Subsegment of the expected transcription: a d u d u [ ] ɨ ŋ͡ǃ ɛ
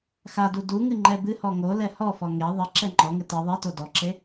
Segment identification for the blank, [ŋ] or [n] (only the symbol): ŋ